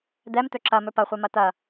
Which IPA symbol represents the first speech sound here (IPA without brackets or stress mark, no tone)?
d̪